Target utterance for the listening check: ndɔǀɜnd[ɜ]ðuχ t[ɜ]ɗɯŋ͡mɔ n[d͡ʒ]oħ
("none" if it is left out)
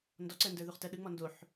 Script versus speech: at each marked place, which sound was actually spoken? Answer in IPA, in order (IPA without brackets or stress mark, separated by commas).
ə˞, ɜ, d